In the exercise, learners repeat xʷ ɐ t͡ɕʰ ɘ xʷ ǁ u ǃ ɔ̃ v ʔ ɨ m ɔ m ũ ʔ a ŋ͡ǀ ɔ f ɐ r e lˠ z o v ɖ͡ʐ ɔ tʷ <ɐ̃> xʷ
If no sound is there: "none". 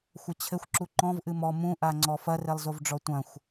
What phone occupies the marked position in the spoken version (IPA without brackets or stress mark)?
ɐ̃